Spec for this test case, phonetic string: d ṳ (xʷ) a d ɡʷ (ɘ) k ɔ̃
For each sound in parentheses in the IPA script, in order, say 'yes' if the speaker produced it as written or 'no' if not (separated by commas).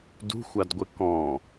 yes, yes